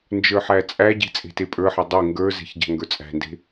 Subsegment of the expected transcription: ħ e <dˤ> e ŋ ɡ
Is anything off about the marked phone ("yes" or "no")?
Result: no